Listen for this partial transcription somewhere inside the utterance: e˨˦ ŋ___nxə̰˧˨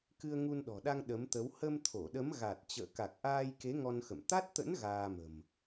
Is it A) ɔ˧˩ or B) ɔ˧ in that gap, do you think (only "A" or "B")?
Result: B